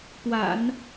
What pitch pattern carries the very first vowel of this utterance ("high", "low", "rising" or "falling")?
low